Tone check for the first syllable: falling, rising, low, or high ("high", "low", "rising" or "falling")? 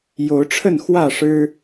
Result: rising